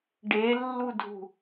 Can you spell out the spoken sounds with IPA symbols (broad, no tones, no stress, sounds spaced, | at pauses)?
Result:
ɖ e lː u dʱ ṳ